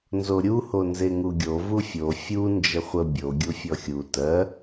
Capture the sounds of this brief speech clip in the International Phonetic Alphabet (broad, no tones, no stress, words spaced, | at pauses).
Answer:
nzoɾʲu honzeŋuɡʲo vufʲo fʲu nd͡ʒəχʷə bʲo ɡʲufʲɔxʲu tɜ